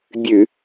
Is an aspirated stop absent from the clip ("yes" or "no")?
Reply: yes